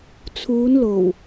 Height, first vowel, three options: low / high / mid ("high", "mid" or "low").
high